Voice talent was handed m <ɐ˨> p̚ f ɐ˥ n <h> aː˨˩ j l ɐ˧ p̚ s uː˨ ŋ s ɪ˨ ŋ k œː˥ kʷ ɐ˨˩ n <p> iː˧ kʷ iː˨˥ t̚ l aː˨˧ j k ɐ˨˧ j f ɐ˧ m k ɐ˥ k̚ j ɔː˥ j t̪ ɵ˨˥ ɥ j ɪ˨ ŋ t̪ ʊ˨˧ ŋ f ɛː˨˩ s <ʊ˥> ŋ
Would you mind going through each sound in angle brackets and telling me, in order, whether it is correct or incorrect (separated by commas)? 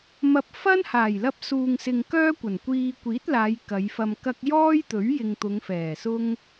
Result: incorrect, correct, incorrect, correct